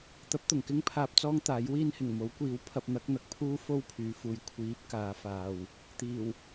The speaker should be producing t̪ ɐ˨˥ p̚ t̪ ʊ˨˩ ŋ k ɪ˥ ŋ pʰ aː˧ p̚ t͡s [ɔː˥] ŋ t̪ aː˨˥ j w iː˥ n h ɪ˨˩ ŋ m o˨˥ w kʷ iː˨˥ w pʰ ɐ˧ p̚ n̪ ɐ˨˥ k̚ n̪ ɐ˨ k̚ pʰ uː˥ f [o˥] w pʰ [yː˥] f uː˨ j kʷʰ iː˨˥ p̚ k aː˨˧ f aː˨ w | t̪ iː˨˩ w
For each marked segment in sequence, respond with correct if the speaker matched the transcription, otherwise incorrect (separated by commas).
correct, correct, incorrect